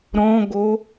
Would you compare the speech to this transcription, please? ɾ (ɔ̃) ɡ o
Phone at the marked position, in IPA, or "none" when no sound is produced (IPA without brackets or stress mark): ɔ̃